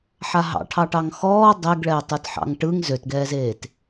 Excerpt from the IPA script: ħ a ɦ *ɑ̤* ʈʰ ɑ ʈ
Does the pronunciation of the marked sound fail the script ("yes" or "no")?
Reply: yes